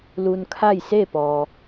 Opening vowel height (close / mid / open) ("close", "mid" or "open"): close